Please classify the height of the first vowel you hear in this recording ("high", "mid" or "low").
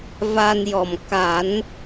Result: low